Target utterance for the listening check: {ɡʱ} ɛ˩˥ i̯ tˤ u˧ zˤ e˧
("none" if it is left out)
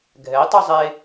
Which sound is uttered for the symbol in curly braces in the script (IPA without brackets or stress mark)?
ɡʱ